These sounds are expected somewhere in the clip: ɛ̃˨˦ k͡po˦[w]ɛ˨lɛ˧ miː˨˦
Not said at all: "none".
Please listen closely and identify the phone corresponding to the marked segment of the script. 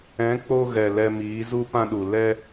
ɣ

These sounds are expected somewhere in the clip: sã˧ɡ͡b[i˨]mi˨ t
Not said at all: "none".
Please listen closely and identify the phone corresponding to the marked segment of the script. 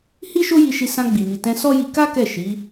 i˨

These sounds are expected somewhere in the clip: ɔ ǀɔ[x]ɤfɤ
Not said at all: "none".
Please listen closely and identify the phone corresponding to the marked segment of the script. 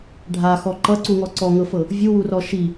ŋ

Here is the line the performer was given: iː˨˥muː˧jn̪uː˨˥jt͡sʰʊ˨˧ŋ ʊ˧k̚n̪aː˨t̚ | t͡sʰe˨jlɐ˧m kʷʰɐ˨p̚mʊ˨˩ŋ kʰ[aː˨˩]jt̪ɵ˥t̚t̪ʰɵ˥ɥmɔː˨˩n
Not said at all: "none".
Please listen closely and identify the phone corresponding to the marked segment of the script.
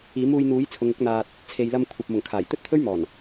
aː˨˩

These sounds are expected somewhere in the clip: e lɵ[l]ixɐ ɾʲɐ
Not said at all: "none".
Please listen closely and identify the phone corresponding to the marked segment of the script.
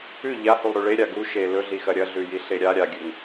ɮ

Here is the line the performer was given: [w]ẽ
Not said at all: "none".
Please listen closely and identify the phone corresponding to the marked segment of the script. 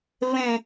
β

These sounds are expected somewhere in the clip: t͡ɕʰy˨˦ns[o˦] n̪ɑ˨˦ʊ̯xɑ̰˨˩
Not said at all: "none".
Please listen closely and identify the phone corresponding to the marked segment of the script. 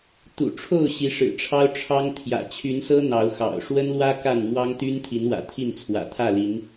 ɤ˦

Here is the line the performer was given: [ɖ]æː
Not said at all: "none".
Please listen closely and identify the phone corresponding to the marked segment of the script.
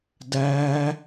d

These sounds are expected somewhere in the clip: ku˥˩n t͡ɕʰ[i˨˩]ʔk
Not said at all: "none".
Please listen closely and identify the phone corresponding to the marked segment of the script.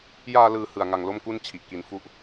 i˨˩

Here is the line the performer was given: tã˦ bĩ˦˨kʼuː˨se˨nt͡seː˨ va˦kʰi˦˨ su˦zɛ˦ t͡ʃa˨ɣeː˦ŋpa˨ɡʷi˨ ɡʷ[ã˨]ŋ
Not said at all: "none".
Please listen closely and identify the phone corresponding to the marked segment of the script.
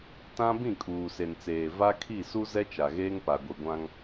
ã˦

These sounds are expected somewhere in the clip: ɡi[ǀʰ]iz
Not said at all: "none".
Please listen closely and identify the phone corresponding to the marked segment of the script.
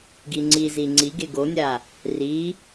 ŋ͡ǀ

